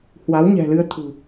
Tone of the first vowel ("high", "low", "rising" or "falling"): rising